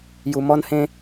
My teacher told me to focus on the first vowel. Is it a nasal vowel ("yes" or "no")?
no